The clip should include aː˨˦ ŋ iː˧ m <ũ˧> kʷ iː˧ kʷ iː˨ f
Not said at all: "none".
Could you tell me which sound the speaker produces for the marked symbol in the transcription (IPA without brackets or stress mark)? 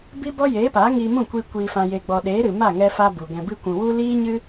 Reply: ũ˦˨